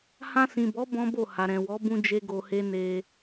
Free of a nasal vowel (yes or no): no